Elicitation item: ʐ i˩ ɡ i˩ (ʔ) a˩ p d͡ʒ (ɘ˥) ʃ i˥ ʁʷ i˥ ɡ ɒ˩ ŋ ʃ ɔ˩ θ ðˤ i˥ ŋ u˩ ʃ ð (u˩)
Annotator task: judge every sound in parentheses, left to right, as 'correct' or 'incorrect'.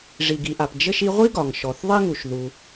correct, correct, correct

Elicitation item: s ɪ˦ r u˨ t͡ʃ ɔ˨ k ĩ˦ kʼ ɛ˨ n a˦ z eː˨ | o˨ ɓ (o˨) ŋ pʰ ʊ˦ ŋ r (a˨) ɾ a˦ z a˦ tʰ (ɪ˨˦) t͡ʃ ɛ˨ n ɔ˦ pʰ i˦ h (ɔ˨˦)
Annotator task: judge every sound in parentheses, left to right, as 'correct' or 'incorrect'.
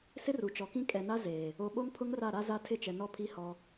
incorrect: o˦, incorrect: a˦˨, incorrect: ɪ˦˨, incorrect: ɔ˦

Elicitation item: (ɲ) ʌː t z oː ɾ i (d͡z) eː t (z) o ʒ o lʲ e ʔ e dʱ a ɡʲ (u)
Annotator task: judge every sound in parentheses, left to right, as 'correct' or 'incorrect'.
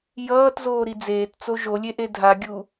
incorrect: j, correct, incorrect: t͡s, correct

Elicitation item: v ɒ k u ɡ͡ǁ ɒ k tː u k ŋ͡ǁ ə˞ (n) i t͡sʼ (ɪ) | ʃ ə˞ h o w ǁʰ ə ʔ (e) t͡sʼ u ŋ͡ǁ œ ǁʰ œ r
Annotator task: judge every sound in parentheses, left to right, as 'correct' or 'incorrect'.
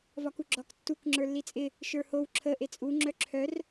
incorrect: lː, correct, correct

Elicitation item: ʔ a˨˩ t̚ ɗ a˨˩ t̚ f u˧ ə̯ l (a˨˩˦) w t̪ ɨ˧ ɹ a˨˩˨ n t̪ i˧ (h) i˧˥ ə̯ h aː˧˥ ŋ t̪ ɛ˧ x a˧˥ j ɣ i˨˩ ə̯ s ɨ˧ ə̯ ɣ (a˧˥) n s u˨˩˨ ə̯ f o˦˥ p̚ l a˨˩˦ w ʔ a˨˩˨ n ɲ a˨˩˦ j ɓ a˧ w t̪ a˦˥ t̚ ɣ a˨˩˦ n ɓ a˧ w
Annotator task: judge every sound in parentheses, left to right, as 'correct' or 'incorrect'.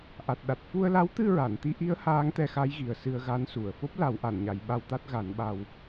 incorrect: a˧˥, incorrect: ʔ, correct

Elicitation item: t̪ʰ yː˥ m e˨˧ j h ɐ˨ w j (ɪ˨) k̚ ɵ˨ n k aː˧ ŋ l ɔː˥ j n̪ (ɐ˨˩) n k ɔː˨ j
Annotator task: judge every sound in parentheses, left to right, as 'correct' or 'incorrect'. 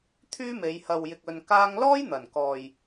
correct, correct

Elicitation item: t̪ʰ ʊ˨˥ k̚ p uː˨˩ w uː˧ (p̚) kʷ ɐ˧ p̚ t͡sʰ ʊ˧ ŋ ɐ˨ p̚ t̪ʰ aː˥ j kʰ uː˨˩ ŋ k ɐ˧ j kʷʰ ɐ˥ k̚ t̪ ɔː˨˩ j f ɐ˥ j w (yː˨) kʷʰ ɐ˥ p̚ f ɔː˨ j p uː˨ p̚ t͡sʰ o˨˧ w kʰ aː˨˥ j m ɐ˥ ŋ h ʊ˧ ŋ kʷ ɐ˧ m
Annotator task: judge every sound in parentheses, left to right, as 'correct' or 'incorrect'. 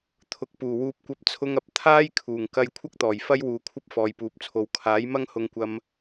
correct, incorrect: uː˨

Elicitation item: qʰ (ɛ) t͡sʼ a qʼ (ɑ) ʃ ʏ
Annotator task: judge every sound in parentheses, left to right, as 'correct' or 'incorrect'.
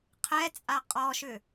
correct, incorrect: ɔ

